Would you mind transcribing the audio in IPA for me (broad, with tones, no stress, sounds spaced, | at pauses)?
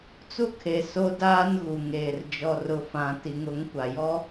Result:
t͡s u˦ kʰ e˨ s o˦ d aː˦ n ɣ u˨ ŋ eː˨ r d͡ʒ ɔ˨ r ʊ˨ f ã˨ t i˨ ŋ ʊ˨˦ ŋ kʷ a˨ j ɔ˦